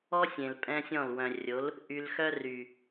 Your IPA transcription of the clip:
ɔ˦ sʲ ẽ˨ l pʼ ɛ̃˦ sʲ ɔ̃˦˨ l w œ̃˨ rʲ o˨˦ l | ʔ y˧ l x œ˦ r y˨

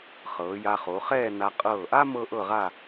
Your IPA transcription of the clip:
χ ɤː˩˧ j a˧ χ o˩˧ χ ɛː˥˧ n a˧ qʼ ɤː˧˩ ʔ a˥ m ɤ˥ ʔ ɤ˥˧ ʁ a˥˧

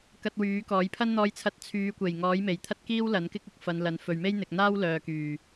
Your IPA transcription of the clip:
k ɐ˧ t̚ w yː˨˥ k ɔː˨˥ j pʰ ɐ˥ n n̪ ɔː˧ j t͡sʰ ɐ˧ t̚ t͡sʰ yː˨˧ kʷ e˨˩ j ŋ ɔː˨˥ j m e˨˩ j t̪ʰ ɐ˥ t̚ k iː˥ w l ɐ˨˥ n k ɪ˥ k̚ ʊ˧ k̚ f ɐ˨˧ n l ɐ˨˧ n f ɵ˨ ɥ m e˥ j n̪ ɪ˨ k̚ n̪ aː˥ w l œː˨ k yː˨˩

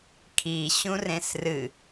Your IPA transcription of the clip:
kʰ i ɕ ũ r ẽ s r ɨ

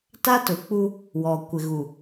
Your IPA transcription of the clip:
t a˦ t ʊ˨ k͡p u˦ | w ɔ˨ kʷ ɪ˨ ɣ u˨

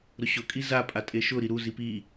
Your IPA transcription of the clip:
ɾ ʊ ɕ ʊ kʼ i z a pʼ a tʼ e ʃ ʊ ɾ i ɾ u z i p i

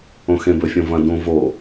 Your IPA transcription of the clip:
õ x ẽ b ɵ fʲ õ v ɐ̃ d ũ v o

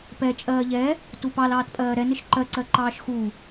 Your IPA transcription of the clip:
p ɛ t͡ʃʼ ɜː ʎ ɛ | t u p ɑ l ɑː t pʼ ɜː ɾ ɛ n ɪ ʃ ǃ ɜ ǀ ɜ ǃ ɑː ʃ x u

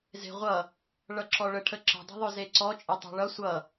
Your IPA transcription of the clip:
z e̤ ʁʷ ʌ | ɭ ʌ ǁ ɔ ɭ ə ʈʰ ə ǁ ə̤ dˤ ə̤ ðˤ œ z e ǀ ɔ t͡ʃʼ e tˤ e̤ ɭ ʌ sʷ ʌ

